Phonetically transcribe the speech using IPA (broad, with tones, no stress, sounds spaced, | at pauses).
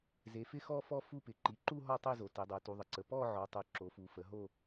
z e˩˧ f ɪ˥˧ x ɔ˥˧ f ɔ˥˧ f u˥˧ p ɪ˩˧ ǃ i˩˧ ǃ u˥˧ ɦ ɔ˥˧ tˤ e˥˧ z o˩˧ t e˩˧ dˤ o˩˧ t u˩˧ ðˤ ə˩˧ ǀ ə˩˧ p ɔ˥˧ ʕ ɔ˩˧ tˤ u˩˧ ǁ o˩˧ f u˩˧ f ə˩˧ ɦ o˥˧